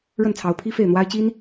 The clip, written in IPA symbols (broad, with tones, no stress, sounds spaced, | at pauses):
ɻ ə˥˩ n t͡sʰ ɑ˧˥ ʊ̯ pʰ i˥ f e˥˩ ɪ̯ n̪ w a˥ ɪ̯ t͡ɕ i˥ n